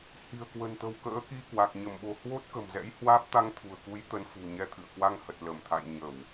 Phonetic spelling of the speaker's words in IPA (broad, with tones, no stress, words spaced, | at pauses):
hi̤˨˩ə̯kwə̤˨˩nt̪ə̤˨˩w kə̰ː˧˥ki˧kwa˨˩k̚ ɲə˧˩mɓo̤˨˩ hwo˦˥t̚kə̤˨˩m zɛ̰˧˥jhwaː˦˥p̚ t̪a˧ŋt̪ʰṳ˨˩ə̯ku˨˦j t̪ə˨˦nfṳ˨˩ ɲɛ˧t̪ʰɨ̰˧˨ə̯ kwa˧ŋhə˨˩t̚lə˧˩mt̪ʰa̰˧˨j ɲə˧˩˨w